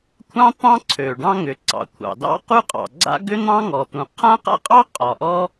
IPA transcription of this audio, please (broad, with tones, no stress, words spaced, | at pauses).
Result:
kʷʰɑ̃˥t̪ɑ̃˥ǀʰø˩ ɖɑ̃˥ŋʏ˩ ǀɑ̰˩kʷʰɑ̰˩dɑ̰˥ qu˥qʼɑ̰˩ɡ͡ǀa̰˥ ɡʏ˥n̪ɑ̃˥ŋɔ˩t̪ũ˩ qʰã˥qa̰˥qʼɑ˥ qʼɒ˩ʔɔ˥